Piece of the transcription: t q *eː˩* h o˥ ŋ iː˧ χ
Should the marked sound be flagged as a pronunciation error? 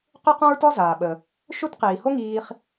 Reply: yes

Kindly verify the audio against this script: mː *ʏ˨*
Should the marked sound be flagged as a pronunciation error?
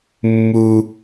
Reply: yes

